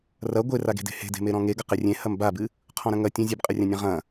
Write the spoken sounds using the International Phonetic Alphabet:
rɐ ɡʷeraɡe̤de̤ he̤de̤meɾɔ̃ ŋeɡɐ qerʲẽ hɐmbabɨ | qʰɔ̃ɾɐ̃ŋɐ tʲɐ̃ zʲɨbqʼɘrʲãnʲã ʁɐ̃

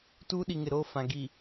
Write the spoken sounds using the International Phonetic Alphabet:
tuː˦ɗi˨ŋɪ˨ ɾoː˦fã˨ ɡi˨

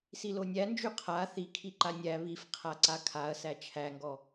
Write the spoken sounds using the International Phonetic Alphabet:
silonʲænd͡ʒy qʰa θikʰi ǃanʲæ βifqʰa ǀakʰaɐ̯sæ t͡ʃʰæŋɡɔ

